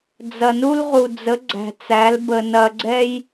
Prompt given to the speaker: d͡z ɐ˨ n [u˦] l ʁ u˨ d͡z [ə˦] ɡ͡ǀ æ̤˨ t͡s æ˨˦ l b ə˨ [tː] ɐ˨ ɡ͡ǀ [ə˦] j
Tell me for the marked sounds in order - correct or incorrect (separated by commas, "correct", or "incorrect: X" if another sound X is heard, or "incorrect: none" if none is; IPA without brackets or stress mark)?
correct, incorrect: ə˨˦, incorrect: n, incorrect: ɛ˦